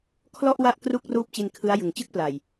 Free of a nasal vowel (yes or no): yes